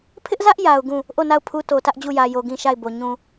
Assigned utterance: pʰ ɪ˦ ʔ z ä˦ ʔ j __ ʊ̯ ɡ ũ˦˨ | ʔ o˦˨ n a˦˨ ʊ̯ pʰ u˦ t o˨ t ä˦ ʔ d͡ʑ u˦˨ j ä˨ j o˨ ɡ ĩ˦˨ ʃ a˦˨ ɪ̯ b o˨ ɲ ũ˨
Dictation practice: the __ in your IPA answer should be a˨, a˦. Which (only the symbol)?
a˨